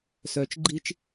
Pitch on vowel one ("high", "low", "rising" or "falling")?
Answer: low